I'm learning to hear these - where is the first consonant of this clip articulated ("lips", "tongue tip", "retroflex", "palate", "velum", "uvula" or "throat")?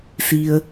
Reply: tongue tip